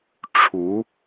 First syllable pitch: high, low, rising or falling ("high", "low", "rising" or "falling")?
rising